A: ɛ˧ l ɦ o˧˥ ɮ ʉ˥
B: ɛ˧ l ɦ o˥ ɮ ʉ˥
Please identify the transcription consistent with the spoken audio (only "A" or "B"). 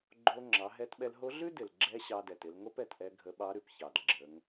A